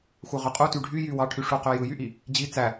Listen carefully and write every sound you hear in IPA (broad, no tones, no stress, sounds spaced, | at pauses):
xʷ ɑ ʁ ø qʼ u t y ɖʱ y j y w ɑ ʈʰ y ʂ u q ø j ɯ j y ʔ i | d͡ʑ i t͡s æ